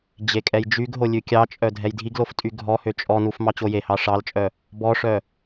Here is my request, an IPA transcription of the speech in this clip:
d͡ʑ e kʼ ɛ j d͡ʒ y ɡ ɦ o lʲ ʉ kʲ ɑ t͡ʃʼ œ dʱ ɛ j dʱ i ɡ l o f tʼ y ɡʱ ɔ h ø t͡ʃʼ ɔ n u f m ɑ t͡ɕ o j e h ɑ ʂ ɑ l t͡ʃʼ œ | b ɔ ʂ œ

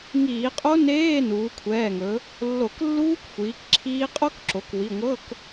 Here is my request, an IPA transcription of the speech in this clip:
ŋ iː˧˩˧ qʼ o˦˥ n eː˧˥˧ n uː˩˧ kʷʰ ɛː˩˧˩ ŋ ɵ˩˧ | lː o˧˩˧ k lː uː˦˥ k xʷ iː˩˧ k ǁʰ iː˦˥ qʼ o˦˥ k ǁ o˩˧ k w i˩˧˩ ŋʷ ɤ˧˥˧ k

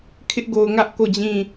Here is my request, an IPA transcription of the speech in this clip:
kʰ ɪ˦ ʔ ɡ o˨ ʊ̯ ŋ ä˦ ʔ k o˦˨ d͡ʑ ĩ˦˨

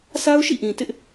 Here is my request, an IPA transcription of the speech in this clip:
s a˦ ʊ̯ ʃ ḭ˦˨ ʔ ĩ˨ t ɪ˦ ʔ

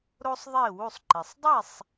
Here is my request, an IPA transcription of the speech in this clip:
ɾ o˥ sˤ ðˤ e˥˩ w u˥˩ sˤ ǃ e˩ sˤ dˤ e˥˩ sˤ

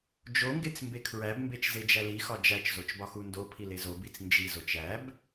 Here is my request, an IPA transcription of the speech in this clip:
d͡ʒ o ŋ ɡ e t͡s m b e kʰ ɹ æ b m b e t͡ʃ z e d͡ʒ æ l i x ɒ d͡ʒ æ t͡ʃ z o t͡ʃ b ɒ x u n d o pʰ i l e z o b i t͡s n d͡ʒ i z o t͡ʃ æ b

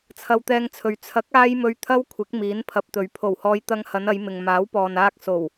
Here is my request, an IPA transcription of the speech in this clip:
t͡sʰ ɐ˧ w t̪ ɛː˧ ŋ t͡sʰ ɵ˨ ɥ t͡sʰ ɐ˨˥ k̚ aː˧ j m ɵ˨˧ ɥ t̪ʰ ɐ˥ w kʷʰ ɪ˨˥ k̚ m iː˨˥ n pʰ ɐ˨ p̚ t̪ ɵ˨ ɥ pʰ o˨˩ w h ɔː˧ j t̪ ɐ˧ ŋ h ɐ˨˧ n ɐ˨˧ j m ɪ˨ ŋ m aː˨˥ w p ɔː˨ n aː˧ k̚ s o˨˩ w

